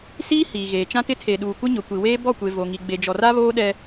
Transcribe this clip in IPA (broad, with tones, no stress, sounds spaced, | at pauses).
s iː˦ h iː˨ ɣ eː˨ t͡ʃ ã˦ t ɪ˦ tʰ e˨ ɗ uː˨ kʷ ɪ˦ ɲ ʊ˨ kʷ i˨ w eː˦ b ɔ˦˨ kʷ e˨ v o˨ ŋ i˨ ɡ͡b e˨ d͡ʒ ɔ˨ r a˦ β oː˦ ɗ ɛ˦